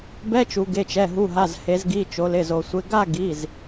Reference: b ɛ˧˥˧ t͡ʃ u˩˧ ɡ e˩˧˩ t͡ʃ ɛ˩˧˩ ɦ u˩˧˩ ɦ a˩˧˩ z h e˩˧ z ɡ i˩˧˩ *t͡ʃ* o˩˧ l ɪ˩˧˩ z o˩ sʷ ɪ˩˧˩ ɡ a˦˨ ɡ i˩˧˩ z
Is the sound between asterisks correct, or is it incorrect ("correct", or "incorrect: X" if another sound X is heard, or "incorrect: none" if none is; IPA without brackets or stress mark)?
correct